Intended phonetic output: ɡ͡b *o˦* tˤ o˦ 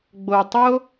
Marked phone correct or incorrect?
incorrect